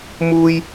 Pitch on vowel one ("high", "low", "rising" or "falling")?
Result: high